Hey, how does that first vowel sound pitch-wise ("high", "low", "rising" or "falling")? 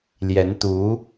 rising